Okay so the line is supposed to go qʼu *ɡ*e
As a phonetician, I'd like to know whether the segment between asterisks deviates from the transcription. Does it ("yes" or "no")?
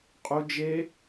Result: yes